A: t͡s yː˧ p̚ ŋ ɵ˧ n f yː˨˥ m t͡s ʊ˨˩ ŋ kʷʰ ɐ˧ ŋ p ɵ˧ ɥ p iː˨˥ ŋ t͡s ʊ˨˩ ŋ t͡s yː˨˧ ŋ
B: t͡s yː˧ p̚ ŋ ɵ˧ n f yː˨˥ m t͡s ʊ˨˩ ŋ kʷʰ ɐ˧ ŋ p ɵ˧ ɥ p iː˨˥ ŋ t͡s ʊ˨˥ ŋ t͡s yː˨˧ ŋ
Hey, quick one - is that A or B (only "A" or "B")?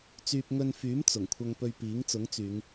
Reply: B